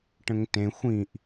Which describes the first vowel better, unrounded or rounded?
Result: unrounded